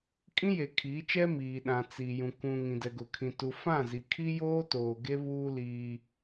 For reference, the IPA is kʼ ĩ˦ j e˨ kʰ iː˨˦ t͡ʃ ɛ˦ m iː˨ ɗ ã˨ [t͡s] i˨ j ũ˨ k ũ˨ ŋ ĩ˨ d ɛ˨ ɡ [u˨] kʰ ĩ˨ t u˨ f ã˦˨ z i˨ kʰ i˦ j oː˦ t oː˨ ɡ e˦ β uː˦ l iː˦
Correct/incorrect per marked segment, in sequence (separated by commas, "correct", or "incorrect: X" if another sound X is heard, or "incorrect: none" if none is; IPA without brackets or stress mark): correct, incorrect: ʊ˨